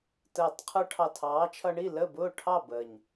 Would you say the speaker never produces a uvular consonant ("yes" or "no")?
no